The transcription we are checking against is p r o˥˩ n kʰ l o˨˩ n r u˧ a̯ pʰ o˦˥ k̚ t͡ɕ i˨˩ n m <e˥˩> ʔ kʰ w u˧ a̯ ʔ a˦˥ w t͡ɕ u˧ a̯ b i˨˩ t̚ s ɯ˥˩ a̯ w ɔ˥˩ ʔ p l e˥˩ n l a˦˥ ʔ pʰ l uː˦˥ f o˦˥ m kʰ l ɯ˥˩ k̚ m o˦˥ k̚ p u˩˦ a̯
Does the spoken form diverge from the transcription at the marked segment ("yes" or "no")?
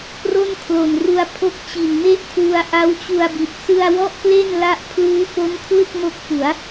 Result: no